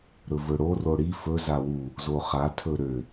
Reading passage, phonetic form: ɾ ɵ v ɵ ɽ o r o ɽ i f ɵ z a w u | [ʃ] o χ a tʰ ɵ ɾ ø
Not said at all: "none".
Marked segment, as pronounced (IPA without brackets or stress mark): z